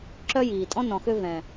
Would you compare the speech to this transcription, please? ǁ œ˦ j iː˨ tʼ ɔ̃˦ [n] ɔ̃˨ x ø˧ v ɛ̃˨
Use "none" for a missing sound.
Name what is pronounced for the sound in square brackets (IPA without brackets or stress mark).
n